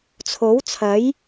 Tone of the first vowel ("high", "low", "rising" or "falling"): rising